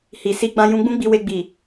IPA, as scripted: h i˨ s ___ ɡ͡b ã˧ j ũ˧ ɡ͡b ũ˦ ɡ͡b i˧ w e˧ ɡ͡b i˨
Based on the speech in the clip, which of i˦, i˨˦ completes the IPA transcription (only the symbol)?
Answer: i˨˦